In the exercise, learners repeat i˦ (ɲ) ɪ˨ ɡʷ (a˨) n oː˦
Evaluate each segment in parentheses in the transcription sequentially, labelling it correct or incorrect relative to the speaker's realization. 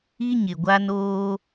correct, incorrect

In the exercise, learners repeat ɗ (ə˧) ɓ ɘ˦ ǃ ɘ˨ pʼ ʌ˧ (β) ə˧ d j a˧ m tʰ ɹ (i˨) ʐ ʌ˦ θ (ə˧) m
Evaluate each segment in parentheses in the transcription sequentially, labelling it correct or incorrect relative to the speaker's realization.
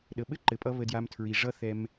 incorrect, correct, correct, incorrect

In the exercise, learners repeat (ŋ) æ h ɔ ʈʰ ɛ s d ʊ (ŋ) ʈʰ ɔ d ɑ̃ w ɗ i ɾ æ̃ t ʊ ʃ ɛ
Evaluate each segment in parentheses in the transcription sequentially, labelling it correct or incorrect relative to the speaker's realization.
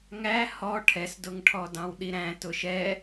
correct, correct

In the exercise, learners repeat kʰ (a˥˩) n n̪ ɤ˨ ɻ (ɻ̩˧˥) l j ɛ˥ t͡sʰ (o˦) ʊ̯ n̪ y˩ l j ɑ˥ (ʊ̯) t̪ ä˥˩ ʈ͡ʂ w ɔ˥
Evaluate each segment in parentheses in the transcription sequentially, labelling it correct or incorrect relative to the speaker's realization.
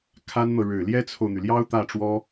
incorrect, incorrect, incorrect, correct

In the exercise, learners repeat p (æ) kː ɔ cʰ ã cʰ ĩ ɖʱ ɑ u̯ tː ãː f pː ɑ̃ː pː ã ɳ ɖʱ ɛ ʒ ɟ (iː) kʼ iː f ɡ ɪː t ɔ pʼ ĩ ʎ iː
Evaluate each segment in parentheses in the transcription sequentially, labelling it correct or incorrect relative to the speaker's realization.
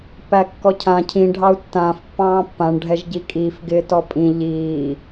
correct, correct

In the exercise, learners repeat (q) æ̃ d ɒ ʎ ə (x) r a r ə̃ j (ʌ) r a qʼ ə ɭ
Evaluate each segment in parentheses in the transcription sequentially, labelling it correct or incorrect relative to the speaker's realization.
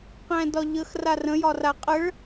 correct, correct, incorrect

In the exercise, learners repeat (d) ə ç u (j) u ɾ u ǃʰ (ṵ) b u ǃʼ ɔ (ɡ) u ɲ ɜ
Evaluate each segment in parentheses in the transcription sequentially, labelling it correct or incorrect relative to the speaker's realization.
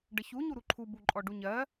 incorrect, incorrect, incorrect, incorrect

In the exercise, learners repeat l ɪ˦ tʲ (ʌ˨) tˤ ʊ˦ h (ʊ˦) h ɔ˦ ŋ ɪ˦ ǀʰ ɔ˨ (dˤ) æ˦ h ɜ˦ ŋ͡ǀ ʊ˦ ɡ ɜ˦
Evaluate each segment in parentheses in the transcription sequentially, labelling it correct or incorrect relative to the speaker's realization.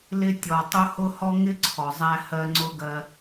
incorrect, correct, incorrect

